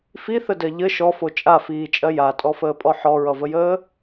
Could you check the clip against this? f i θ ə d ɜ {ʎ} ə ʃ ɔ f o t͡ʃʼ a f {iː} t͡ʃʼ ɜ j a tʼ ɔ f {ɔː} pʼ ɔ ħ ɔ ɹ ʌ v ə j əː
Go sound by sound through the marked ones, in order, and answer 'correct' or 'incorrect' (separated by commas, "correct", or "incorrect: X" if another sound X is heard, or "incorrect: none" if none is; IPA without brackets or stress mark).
correct, correct, incorrect: əː